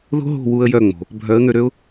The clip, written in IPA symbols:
ðo̤˦ɦo̤˦˨ wu˧ə̯jœ˦˨ŋ͡mo̤˨ | bʱœ˨˦ə̯ŋø˧ ɾø˦ʊ̯

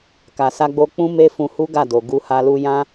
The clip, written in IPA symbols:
ka˨sa˧ɡ͡bo˧ k͡pũ˦me˦fũ˧ hu˦ɡa˦˨do˨ ɡu˧ha˧lu˧ jã˦

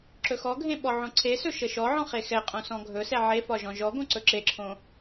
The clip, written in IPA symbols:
ǁɵxɔɡʱẽ ɓɔʕõǀʰesɵ ʃəʃɔʕɔ̃ χexɛqʼõ sɔ̃ɡʱɵsɛ ʕefɒ ʒɔ̃ʒɔɡõ ǀɵǁeǁʰõ

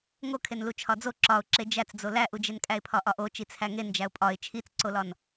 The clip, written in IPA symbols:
ŋokʰenlu t͡ʃʰɒd͡zo ǁɒʊ̯ ǁed͡ʒæt͡sd͡zo læʔud͡ʒenkʼæɪ̯ pʰɒʔɒʔo t͡ʃit͡sʰæŋend͡ʒæʊ̯ pʼɒɪ̯ t͡ʃʰit͡sǀolɒn

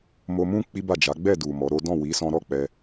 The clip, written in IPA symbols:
mo˧mũ˦ k͡pi˦ba˦˨d͡ʒa˨˦ ɡ͡bɛ˦˨du˨ mɔ˨˦ɾo˦ dɔ̃˦˨wi˨˦sɔ̃˧ɾɔ˦ k͡pɛ˦

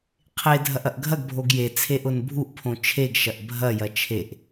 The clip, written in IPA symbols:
qʰe dʱɐʔɐʔɡʱɐɡbʱoɡ je t͡sʰeʔʊnbʱuʔpʰõ t͡ʃʰeɡʃɐʔ bʱɐjɐ t͡ʃʰeʔ

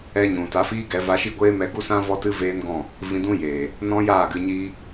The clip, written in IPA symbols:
ɛ˧ɲũ˨ta˨˦ fiː˦ɡɛ˨˦ va˧ʃi˦˨ ɡʷeː˦mɛ˧ɡu˦sã˦ vɔ˦tɨ˦veː˦nɡɔ̃˦˨ | vĩ˧dũ˦jeː˨ | nɔ̃˦jaː˦˨ɡɨ˧ɲiː˦

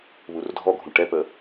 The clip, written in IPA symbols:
βurdʱɔɡʱũ ʈɛpə

